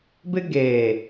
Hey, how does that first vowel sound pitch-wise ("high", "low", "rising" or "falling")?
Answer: high